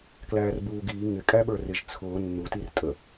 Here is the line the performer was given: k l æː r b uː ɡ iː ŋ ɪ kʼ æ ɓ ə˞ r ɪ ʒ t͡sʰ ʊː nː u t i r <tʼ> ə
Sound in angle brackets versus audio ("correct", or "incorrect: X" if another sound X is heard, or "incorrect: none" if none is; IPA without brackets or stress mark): correct